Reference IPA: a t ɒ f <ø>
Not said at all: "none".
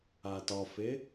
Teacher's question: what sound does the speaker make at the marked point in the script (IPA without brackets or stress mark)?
e